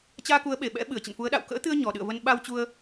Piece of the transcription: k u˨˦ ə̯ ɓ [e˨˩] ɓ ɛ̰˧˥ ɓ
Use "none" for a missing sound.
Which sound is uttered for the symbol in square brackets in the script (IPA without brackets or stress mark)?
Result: e˨˩